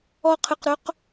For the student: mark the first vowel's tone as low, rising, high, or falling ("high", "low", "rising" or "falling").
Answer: low